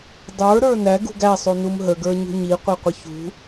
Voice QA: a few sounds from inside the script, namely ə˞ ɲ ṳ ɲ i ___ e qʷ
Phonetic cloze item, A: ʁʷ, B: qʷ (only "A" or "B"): B